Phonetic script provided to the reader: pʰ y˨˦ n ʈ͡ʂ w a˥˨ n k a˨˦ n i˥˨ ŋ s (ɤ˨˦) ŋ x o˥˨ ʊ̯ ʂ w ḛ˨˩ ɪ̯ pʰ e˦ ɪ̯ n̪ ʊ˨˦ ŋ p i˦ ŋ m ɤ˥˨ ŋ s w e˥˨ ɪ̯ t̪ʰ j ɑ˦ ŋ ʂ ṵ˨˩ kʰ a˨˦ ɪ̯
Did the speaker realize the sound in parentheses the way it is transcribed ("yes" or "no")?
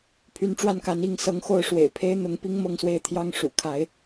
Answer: yes